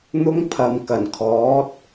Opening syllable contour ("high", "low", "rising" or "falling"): high